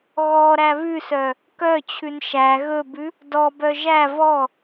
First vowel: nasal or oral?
oral